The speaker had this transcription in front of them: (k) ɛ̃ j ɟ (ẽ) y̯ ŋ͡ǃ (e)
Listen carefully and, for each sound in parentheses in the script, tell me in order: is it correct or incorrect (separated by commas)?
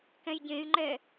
correct, correct, incorrect